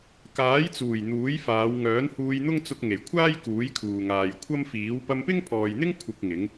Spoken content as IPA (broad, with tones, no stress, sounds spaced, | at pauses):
k aː˨˥ j t͡s uː˨˩ j n̪ uː˨˥ j f aː˨˧ w ŋ œː˨˥ n h uː˧ j n̪ ʊ˥ ŋ t͡s ʊ˧ k̚ ŋ e˨˩ j kʷʰ aː˥ j k uː˨˥ j kʰ uː˨ ŋ aː˨ j kʷʰ ɐ˥ m f iː˨˥ w p ɐ˧ m p ɪ˥ ŋ pʰ ɔː˨ j n̪ ɪ˥ ŋ kʷʰ ɪ˨ k̚ ŋ ɪ˨˥ ŋ